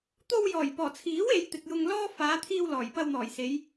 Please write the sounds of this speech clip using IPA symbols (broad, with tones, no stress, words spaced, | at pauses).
t̪o˧wjɔː˨˩jpɔː˨˩t͡sʰiː˨˥w e˨˧jt̪ɪ˨k̚ jʊ˧ŋlɔː˥ faː˨˧t̪ʰiː˧w lɔː˨˩jpɐ˧wn̪ɔː˨˩jse˨˧j